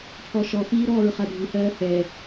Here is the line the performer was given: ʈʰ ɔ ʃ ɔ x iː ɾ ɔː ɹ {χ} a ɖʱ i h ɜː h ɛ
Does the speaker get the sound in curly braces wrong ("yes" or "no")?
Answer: no